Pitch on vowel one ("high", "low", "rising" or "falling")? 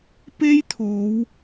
high